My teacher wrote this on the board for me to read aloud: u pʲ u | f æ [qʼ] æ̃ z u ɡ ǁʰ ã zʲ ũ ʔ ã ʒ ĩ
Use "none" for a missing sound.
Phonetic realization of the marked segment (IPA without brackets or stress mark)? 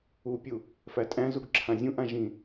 tʼ